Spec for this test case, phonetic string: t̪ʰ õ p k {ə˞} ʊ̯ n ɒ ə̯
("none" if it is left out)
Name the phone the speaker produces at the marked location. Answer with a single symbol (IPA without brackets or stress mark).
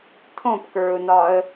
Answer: ə˞